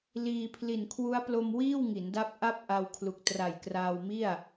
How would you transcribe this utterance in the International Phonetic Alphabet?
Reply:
l iː˧ pʰ l i˨˩ n kʰ w u˦˥ a̯ p l o˧ m w iː˥˩ w ŋ i˩˦ n d a˦˥ p̚ ʔ a˥˩ p̚ ʔ a˧ w kʰ l u˨˩ k̚ t r a˨˩ j k r aː˧ w m i˥˩ a̯

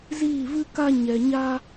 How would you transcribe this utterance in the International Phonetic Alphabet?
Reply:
z iː˦˨ v ɨ˦ k a˦ ɲ ɛ˧ ɲ a˦

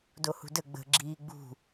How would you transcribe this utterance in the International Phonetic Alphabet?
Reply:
d o h ṳ d ə ɡ͡b ə̤ ɡ͡ǁ iː ɡ͡b ṳ

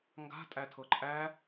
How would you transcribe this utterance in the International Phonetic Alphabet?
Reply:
ŋ ɡ a̤ tʼ æ tʰ ɤ ǃʼ æ

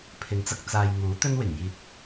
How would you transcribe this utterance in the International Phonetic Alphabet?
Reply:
pʰ ɪ˨˧ ŋ t͡s ɐ˧ k̚ t͡s aː˨ j ŋ uː˨˥ t̪ ɵ˥ n w ɪ˨˩ ŋ j iː˨ t̚

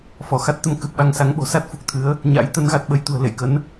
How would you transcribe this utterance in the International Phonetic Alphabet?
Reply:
f ɔ˧˩ x a˦˥ t̚ t̪ ə˨˦ m k ɨ˨˩ p̚ ɓ a˧ ŋ s a˨˦ ŋ ɓ o̤˨˩ s a˦˥ t̚ f u˨˩ k̚ t̪ʰ ɨ˨˦ ə̯ | ɲ a̰˧˥ j t̪ ə˨˦ n ɣ a˨˩ t̚ ɓ ə˧ j t̪ ṳ˨˩ ə̯ l ḛ˧˨ j k ə˨˦ n

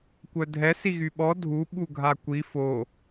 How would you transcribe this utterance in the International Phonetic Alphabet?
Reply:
kʷ œ dʱ ɛ s i ɣ y ɓ ɔ dʱ u ɓ u ɡʱ a kʷ i f o

